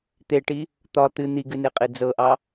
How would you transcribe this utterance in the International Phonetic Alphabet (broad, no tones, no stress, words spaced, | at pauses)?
t̪eʈi | t̪ɒ t̪ɨ n̪iɡɨneqʼe d͡zɤʔɑ